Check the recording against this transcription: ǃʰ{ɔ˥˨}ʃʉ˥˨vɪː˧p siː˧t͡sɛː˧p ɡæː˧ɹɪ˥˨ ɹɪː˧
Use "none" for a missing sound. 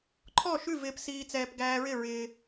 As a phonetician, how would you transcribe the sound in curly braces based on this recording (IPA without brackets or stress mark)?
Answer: ɔ˥˨